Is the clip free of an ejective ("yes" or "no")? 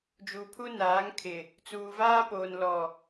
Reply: yes